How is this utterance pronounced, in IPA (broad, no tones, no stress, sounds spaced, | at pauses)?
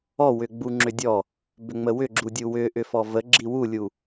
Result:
ɔ w ʏ ɡ͡b u ŋ͡ǁ ʏ dʲ ɔ | b ʏ ŋ͡m ə w ʏ ɡ͡ǁ u dʲ u w ʏ ʔ ʏ f ɔ v ə ɡ͡ǁ i w u lʲ u